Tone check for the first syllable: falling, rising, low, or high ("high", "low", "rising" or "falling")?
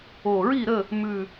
low